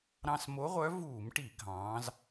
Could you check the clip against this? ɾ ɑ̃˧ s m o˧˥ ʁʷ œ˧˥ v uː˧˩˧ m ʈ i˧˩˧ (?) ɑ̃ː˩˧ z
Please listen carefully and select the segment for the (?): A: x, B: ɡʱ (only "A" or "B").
B